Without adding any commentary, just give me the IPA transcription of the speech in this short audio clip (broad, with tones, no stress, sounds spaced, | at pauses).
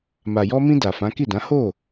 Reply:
m a˨ j ɔ˧ m ĩ˧ d a˨ f ã˨˦ k i˦˨ d ã˨˦ h o˦˨